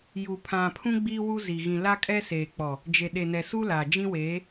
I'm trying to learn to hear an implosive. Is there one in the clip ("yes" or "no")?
yes